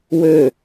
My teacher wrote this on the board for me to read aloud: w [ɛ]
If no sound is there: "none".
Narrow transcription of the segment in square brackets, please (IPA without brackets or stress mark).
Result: ø